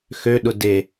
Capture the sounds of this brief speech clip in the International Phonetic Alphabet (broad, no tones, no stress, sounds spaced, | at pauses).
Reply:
x ø ɗ ʊ d e